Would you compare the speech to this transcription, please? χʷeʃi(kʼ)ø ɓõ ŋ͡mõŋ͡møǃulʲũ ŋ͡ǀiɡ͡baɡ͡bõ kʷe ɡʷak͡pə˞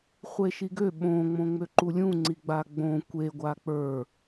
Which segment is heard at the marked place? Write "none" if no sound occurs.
ɡ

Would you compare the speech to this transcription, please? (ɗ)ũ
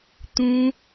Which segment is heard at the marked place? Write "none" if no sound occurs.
t̪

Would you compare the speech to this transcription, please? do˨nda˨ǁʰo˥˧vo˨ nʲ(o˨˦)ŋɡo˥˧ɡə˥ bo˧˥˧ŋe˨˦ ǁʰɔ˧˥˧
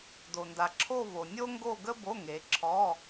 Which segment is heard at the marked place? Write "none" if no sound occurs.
o˥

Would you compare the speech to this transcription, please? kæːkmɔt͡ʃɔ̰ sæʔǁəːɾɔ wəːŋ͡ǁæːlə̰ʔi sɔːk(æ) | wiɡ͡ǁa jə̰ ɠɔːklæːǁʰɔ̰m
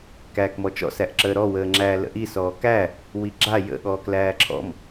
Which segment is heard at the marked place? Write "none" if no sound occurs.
æ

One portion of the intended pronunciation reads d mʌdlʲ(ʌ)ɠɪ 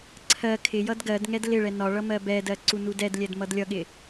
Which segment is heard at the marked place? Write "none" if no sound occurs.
ʌ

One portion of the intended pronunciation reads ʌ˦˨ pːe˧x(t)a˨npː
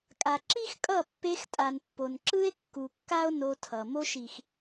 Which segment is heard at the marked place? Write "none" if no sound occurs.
tʼ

